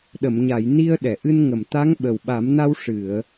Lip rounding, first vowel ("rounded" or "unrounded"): unrounded